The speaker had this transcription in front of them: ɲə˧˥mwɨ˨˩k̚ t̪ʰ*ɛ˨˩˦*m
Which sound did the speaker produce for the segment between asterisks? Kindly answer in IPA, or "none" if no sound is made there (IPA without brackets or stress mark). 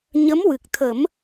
ə˨˩˦